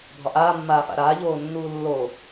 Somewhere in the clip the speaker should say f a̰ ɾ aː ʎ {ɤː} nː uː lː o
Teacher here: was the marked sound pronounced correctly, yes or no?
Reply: no